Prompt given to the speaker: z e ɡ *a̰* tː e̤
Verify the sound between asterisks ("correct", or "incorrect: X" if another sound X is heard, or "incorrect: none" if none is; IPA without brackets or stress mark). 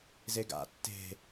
correct